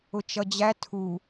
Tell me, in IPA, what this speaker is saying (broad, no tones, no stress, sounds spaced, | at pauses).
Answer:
ʊ t͡ʃ ʌ d͡ʑ æ tʰ u